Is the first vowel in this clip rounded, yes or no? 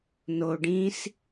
yes